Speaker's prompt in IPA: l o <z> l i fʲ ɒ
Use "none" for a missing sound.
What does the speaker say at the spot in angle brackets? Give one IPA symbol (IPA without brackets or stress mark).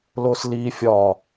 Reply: s